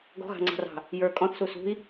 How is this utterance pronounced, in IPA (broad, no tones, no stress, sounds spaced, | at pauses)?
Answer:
ɡ ɔ̤ ɣ ɑ̤ ŋ͡ǀ ɑ̤ r ɑ̤ | j ə˞ kʼ ɔ̃ θ s u s ṳ i̯